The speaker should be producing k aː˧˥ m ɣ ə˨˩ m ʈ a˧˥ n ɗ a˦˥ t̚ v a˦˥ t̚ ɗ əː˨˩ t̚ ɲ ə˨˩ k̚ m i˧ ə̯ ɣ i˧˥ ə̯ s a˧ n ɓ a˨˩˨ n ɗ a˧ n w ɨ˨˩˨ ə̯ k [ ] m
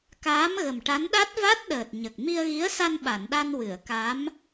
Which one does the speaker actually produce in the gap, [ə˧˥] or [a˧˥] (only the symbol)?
a˧˥